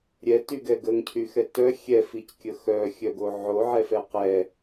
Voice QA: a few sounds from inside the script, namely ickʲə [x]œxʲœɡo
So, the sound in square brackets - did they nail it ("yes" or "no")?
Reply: yes